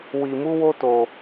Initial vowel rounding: unrounded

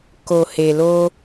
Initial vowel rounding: rounded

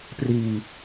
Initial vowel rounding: unrounded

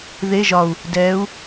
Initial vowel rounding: unrounded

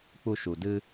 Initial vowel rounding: rounded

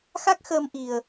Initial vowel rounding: unrounded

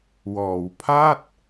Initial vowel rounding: rounded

